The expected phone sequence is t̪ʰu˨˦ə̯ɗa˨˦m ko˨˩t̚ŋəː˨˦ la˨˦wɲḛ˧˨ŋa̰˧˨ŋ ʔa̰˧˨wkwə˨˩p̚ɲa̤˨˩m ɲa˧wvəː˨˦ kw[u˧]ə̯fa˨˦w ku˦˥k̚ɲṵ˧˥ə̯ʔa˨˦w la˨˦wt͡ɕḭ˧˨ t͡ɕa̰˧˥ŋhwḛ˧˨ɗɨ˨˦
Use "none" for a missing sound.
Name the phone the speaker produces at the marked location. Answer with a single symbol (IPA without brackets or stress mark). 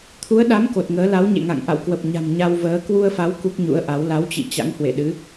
u˧